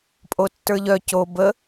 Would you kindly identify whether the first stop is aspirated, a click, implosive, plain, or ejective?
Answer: ejective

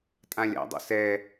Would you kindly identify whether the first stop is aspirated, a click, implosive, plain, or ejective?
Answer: ejective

